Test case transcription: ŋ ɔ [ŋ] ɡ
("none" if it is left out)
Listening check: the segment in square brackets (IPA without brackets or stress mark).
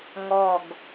none